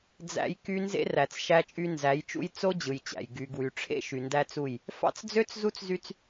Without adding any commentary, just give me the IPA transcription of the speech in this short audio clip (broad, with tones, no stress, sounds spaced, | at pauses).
d͡z æ̰˨ j k y˦ n z ḛ˦ r æ˨ t͡s ʃ æ˦ t͡ʃʼ y˦ n z æ˨˦ j t͡ʃ ṵ˦ j t͡s o˦ d͡ʑ ɯ˨ j t͡ɕ æ̰˨ j ɡ y˨ ɡ w y˨ ʈ͡ʂʰ ḛ˦ ʃ y˨ n d æ˦ t͡s u˦˨ j | f ɑ̰˦ t͡s d͡z ø˦ t͡s z u˦ t͡s z y˦ t͡s